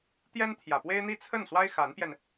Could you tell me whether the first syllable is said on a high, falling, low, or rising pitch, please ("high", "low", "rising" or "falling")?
high